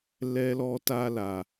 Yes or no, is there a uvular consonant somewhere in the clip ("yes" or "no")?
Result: no